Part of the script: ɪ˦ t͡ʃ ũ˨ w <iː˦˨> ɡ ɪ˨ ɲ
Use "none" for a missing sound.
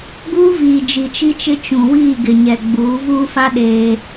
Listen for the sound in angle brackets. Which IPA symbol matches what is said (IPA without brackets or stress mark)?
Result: iː˦˨